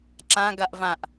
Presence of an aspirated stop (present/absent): absent